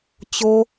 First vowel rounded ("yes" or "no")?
yes